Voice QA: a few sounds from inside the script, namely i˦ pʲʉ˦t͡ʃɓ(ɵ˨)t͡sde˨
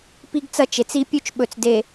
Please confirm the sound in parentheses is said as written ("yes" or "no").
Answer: yes